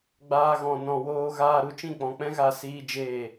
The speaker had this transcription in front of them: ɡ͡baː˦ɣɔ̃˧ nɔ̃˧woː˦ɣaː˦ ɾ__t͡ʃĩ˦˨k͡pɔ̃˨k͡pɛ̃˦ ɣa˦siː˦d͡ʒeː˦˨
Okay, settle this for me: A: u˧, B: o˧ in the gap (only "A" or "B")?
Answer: A